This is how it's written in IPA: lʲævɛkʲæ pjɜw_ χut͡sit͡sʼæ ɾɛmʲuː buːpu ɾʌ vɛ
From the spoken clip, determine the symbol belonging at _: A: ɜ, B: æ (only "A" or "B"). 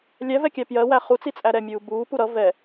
B